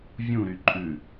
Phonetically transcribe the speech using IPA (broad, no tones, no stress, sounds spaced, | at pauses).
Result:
vʲ ũ ɾ y ǃʼ ʉ